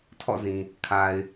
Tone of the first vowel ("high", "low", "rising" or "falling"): falling